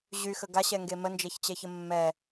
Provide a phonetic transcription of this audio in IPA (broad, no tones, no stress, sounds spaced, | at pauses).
ʑ y x ə ɡ a ɕ ɛ ŋ ɡ e m ə n d͡ʒ ɛ ç t͡ɕ ɛ ç ə mː ɛ